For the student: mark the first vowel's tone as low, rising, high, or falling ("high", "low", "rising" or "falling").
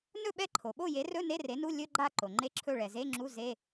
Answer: falling